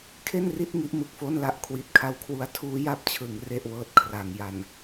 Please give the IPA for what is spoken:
kʰ e˥˩ n r i˥˩ t̚ ŋ i˦˥ ʔ m ɯ˨˩ k̚ f o˥˩ n l a˥˩ ʔ kʰ w i˨˩ t̚ kʰ a˦˥ w kʰ w u˧ a̯ tʰ uː˦˥ j a˦˥ p̚ t͡ɕʰ ɯ˩˦ ŋ r e˥˩ ʔ w ɤː˦˥ t̚ kʰ r a˩˦ ŋ j a˨˩ n

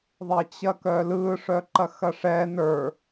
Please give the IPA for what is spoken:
ðˤ ɐ t͡ɕ ɐ k œ l ɯ ʂ œ ǃ ɐ x ɐ ʂ ɛ n ə˞

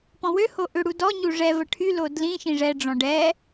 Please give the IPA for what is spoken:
p ɔ̃ w ø h o ʔ ʏ ɽ u d ɔ ɲ u ʐ ɛ v ə ʈʰ y l o d l ĩ ʃ ĩ ʐ ɛ ɖ͡ʐ ɔ̃ ɖ ɛ

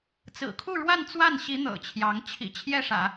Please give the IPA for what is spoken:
t͡s ɹ̩˨˩ kʰ u˥˧ ɻ w a˥˧ n t͡s w a˥˩ n ɕ i˧˥ n̪ ɤ̰˨˩ t͡ɕʰ j ɑ˧˥ ŋ t͡ɕʰ ḭ˨˩ t͡ɕʰ j ɛ˥˩ ʂ ä̰˨˩˦

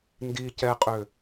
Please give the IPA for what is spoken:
n d i c ɛ qʼ ø

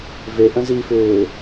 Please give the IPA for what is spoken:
v e ʔ ə̃ z i f ʏː

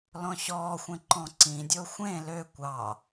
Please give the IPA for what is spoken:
l ɔ̃ ɕ ɔː xʷ ẽ ǃ ɔ̃ ǀ ĩ dʲ o xʷ ẽ l ø kʷ ɑ

